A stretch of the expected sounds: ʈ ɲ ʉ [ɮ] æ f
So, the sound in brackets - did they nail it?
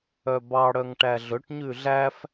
yes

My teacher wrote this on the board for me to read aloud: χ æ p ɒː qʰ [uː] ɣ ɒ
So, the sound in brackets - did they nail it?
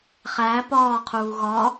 yes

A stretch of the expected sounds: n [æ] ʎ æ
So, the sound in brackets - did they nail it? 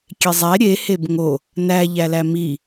yes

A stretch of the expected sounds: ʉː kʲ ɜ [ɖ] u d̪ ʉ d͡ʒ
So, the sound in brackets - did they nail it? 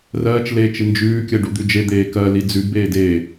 yes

